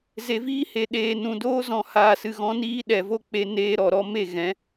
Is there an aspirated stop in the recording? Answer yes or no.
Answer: no